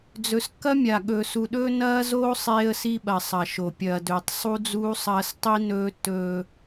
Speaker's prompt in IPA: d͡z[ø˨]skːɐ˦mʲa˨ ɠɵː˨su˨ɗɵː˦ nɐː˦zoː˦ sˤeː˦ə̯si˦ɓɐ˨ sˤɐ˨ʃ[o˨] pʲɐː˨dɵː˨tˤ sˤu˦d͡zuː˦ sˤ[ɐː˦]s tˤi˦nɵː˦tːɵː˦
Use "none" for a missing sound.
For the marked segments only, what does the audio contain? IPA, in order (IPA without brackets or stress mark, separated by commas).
ɵ˨, o˨, ɐː˦